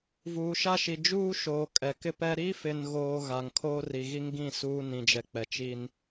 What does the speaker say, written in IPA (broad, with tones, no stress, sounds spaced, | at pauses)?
v uː˨ ʃ a˦ ʃ i˨ d͡ʒ uː˦ ʃ oː˨ kʼ ɛ˨ k ɪ˦ p ɛ˦ ɾ i˦ f ɪ˨ n ɣ oː˨ ɣ a˨ ŋ kʰ oː˦ r i˨ ɣ i˦ ŋ ɡ ĩ˦˨ s uː˦ n ĩ˨ d͡ʒ ɛ˨ k͡p ɛ˨ t͡ʃ i˦ n